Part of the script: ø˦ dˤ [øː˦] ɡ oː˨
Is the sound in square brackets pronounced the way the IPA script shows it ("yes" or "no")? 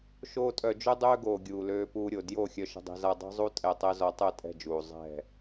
yes